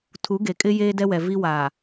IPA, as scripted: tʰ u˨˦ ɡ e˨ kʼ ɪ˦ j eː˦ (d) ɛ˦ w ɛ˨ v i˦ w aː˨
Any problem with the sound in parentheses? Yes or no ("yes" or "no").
no